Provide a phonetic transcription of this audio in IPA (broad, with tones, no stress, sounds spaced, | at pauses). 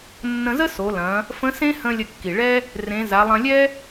nː ə̃˧ z ə˥ s o˩˧ l ɐ̃˩˧ | f ə̃˧˥ s ẽ˥ h ə̃˧ lʲ ə˧ kː i˩ ɭ ɛ˥ | r ẽ˩˧ z a˩˧ lˠ ɐ̃˧ lʲ ɛ˥